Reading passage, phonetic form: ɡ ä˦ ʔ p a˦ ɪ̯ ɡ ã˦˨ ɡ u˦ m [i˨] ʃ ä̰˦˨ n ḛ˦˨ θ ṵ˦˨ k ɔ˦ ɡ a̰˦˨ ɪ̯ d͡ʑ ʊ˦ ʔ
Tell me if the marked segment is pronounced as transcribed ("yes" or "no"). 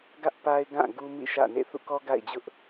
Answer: no